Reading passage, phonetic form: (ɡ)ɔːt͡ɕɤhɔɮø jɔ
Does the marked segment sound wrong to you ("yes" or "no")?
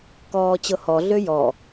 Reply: yes